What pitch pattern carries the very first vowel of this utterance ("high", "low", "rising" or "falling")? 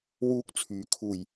high